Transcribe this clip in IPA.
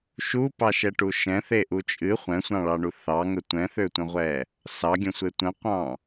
ʃupɑʃɛʈu ʃɛ̃θeʔu t͡ʃʼɨ χʷɛ̃sʷɑ̃ɭɑɳu θɑŋə tʷɛ̃θøtʷə̃ʁʷɛ | sɑɡʲə̃sʷe tʷə̃qʷɑ̃

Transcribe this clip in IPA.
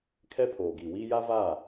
kʰɛ˦pʰoː˨ɡi˨wiː˦ ja˦vaː˦˨

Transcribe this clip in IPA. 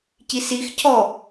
cisix cʰɔ

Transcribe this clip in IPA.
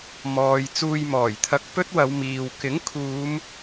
mɔː˨j t͡suː˧jmɔː˨˩jt̪ʰɐ˧k̚ pɵ˥t̚wɐ˨˧wmiː˨w kɪ˨˥ŋkʰuː˨˧m

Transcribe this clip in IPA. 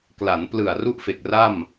kla˩˦nplɯ˨˩a̯ ru˥˩ʔfe˨˩k̚ra˥˩m

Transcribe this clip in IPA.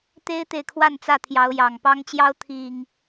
t̪e˦ɪ̯t̪e˨ɪ̯kʰwa˥˨nt͡sä˥˨ t̪ʰjɑ˨˦ʊ̯jɑ˨˩ŋpɑ˦ŋt͡ɕjɑ˦ʊ̯ t̪ʰi˨˩ŋ

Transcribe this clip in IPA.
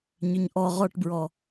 ɲʏɲʔɔ ʁɔʈbɹɔ

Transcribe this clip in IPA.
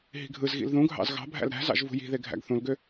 ɦi̤ɡʱɯzɣḭl ðũɡʱɑ̰z ɣɑ̤bʱæ̰l ɾæ̤zɑ̰ʒ vṳji̤ðe ɡʱæ̰ɡθũlɡø

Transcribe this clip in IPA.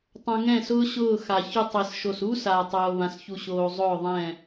tˤõ˧ŋɛ̃˦˨sʊː˦ ɕʊː˦˨xa˨ çʊ˧tˤe˨sʃo˨s u˦sa˨ tˤoː˧βã˧sçu˧ɕoː˧ zˤʊː˦˨ðˤɛ̃˦˨

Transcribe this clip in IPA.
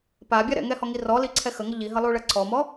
pabʲa ɾɛ̰ŋɛhɔŋi rɔliǀʰɛ xəŋə ʎiɦəlˠuɭə ǀɔmɔ

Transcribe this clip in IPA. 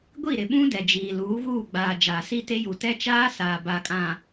ɡʷi˦˨ɾɪ˨ ɓũ˦ dɛ˨d͡ʒiː˨ luː˨˦ɣuː˦˨ɡ͡baː˨ d͡ʒaː˨si˦te˦ju˨ tɛ˦t͡ʃaː˦ saː˨ba˨kʼã˨

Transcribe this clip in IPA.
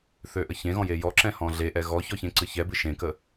θøʔəçẽɣɔ̃ jejɔǁɛ̃ hɔ̃ɮeʔɛ ɣɔçɔ çẽǀɨçɛbɨ ʃẽkə

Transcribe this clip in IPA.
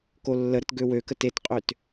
kolːəɾət ɡøwøkət etqʼøt

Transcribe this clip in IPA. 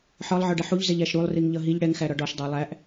ħɒlˠʕɒɖə ħuʎzɛʎæʃ ɾulˠriŋʎʌ ɦiʎ ɽɛŋxæɾɒ ɖɒʃdˤæ lˠæʔ

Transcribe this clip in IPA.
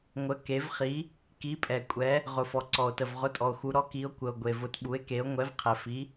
ŋʷə˩˧ke˩˧vχi˩˧ | ki˩˧pʼɛ˩kʷʼɛ˩˧ | ʁʊ˩fɔ˩ǀɔ˩o̯tə˩v ʁʊ˩˥tʼɔ˩o̯xu˩˧ɾɔ˩˥ ki˩˧o̯kʷə˩o̯ ɡʷe˩vʊ˩˧t ɓu˩˧e̯ke˩˧o̯ ŋʷɛ˩˧vqʰɛ˩fi˩˧

